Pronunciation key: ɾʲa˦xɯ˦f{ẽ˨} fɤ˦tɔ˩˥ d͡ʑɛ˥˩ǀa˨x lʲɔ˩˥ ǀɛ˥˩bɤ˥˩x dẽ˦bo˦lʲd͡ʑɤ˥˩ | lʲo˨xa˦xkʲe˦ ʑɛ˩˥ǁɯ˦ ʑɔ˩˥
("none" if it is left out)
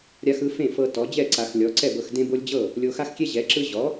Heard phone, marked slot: ẽ˥˩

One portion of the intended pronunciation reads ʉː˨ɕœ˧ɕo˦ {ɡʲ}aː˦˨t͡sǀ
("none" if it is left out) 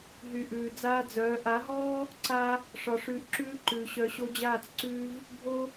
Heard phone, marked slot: d͡ʑ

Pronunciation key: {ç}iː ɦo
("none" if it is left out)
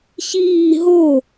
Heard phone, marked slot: ç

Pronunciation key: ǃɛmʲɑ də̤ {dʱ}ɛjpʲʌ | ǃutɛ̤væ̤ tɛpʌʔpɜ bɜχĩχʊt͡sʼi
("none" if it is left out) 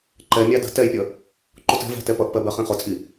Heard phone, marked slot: t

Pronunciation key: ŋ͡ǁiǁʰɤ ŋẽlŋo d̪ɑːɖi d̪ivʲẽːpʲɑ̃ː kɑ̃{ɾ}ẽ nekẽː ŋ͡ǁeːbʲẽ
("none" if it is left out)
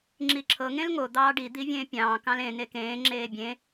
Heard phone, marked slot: l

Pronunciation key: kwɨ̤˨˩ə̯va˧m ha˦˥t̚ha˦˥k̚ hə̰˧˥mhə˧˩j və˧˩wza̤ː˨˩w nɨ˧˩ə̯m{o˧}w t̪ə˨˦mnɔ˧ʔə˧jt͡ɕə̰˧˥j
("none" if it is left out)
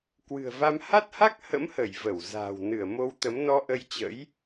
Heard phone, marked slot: o˧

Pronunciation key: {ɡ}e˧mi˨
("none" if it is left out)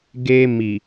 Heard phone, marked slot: ɡ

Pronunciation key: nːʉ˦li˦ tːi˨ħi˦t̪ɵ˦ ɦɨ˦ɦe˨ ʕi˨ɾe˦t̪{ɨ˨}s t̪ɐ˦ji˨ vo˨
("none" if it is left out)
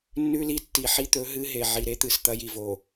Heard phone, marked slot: ɨ˨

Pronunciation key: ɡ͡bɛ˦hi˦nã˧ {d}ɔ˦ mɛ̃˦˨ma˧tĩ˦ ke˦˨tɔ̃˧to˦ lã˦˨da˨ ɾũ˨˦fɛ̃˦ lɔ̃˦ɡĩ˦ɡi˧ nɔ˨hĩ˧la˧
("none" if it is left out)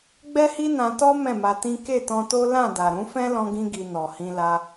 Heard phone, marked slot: t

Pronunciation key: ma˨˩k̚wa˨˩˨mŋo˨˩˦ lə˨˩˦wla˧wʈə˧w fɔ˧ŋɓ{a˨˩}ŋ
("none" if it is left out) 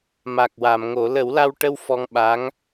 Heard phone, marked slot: a˧˥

